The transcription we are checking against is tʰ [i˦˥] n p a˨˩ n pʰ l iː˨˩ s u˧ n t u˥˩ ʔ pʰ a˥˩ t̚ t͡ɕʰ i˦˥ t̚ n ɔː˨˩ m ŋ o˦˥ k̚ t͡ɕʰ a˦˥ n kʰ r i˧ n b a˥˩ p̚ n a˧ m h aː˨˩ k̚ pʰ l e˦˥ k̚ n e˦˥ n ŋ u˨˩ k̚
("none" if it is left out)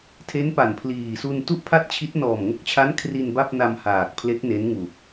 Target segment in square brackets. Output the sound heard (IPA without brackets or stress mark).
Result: e˦˥